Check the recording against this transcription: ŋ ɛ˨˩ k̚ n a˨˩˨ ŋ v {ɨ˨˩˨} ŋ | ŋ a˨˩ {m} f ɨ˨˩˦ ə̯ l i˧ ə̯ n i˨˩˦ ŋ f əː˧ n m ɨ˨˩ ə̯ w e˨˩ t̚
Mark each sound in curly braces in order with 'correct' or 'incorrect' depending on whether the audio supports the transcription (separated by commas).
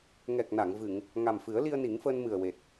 correct, correct